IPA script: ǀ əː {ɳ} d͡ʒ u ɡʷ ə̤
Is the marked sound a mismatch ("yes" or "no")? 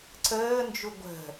yes